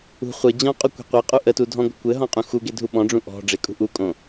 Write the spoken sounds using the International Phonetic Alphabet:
ṳ χʷɘ d͡ʑɔ̃qʼu kʷe̤qʷeqʼu ʔətudʱɔ̃ ɡʷə̤kʷɘ ɦɔ̃qʼũxuɡe dʱuɓɔ̃ɖ͡ʐũ ʔɔ̤ɖ͡ʐekʼṳ ʔukʼõ

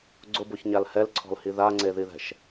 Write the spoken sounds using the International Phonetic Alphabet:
ɡ͡ǀʊboçɲal hɛlǀʰɔ̤lhi ðaŋ͡ǀeðiðɛ̤ʃ

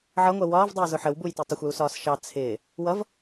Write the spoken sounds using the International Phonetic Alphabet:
ʕʌŋʷɜ wɒːvdˤɪːzʊ ħəwbujti tˤəxʷjusɒːs ʃɑ t͡sʰɪː | wʌv

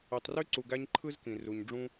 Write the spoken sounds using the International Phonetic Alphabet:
y˩tˤry˦ ǀu˨ɡæ˦ɲ ǃʰɯ˥zkĩ˩ ru˩ɲɖ͡ʐũ˦

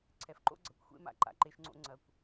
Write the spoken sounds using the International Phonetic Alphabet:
ǀʰɛ˨fǃo̰˦ɡ͡ǀɐ˨kʷxʷḛ˦ ma̰˨ǃa̰˨ǃe˦ʃŋ͡ǀo̰˦ ŋ͡ǀɐ˨kʷ

